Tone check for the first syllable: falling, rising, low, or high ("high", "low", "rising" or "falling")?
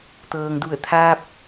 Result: low